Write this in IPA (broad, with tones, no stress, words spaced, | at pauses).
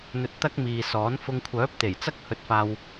n̪ɵ˧t̚t̪ɐ˥k̚miː˨sɔː˨˥n fʊ˧ŋkʷʰœː˨˥p̚t̪e˨˩jt͡sɐ˥k̚ hɵ˧t̚faː˧w